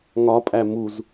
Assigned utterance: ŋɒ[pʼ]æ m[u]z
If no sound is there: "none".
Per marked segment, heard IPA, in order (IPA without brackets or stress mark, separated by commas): pʼ, u